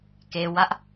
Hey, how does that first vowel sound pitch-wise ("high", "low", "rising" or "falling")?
low